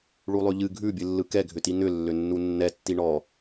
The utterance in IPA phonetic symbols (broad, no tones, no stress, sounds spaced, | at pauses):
ɭ u lˠ ʉ ʎ ɨ ɡʱ ʉ bʲ ɨ lː ɯ k ɛ ɡʱ ʏ t i n̪ ʏ lː ʏ nː u nː ɛ tː i ɳ ɔ